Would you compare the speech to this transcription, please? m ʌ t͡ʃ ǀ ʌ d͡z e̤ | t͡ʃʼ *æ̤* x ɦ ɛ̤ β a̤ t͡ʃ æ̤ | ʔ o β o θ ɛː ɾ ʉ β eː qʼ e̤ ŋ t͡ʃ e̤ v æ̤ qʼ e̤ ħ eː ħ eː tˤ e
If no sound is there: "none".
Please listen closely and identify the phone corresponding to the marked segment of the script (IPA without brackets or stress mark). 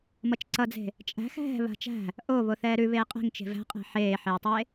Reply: æ̤